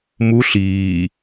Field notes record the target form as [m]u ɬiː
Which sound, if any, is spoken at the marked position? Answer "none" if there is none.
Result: m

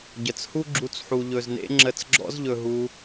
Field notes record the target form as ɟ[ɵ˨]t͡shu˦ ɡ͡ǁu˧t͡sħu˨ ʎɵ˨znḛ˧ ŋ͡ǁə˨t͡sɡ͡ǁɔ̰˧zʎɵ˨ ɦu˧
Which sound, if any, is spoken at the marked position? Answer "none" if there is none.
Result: ə˨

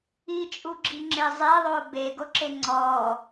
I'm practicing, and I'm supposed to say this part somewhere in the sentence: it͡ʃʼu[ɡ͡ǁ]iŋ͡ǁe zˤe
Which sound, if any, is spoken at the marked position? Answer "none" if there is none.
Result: ɡ͡ǁ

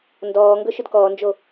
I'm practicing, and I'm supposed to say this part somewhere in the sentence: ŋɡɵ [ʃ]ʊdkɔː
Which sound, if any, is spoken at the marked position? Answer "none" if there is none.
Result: ʃ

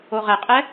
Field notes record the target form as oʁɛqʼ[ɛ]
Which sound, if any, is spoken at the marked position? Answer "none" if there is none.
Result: ɛ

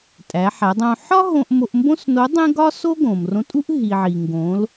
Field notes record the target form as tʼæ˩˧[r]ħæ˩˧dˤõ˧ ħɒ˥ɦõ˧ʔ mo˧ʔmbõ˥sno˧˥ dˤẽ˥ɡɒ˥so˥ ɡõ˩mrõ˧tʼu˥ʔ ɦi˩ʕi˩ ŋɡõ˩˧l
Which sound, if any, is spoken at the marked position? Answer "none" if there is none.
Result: none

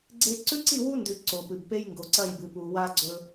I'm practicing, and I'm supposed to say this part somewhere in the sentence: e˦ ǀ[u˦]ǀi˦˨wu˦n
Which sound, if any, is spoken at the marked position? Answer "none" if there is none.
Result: ʉ˦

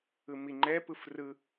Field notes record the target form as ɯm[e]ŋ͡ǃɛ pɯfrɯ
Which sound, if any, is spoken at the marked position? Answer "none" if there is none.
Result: i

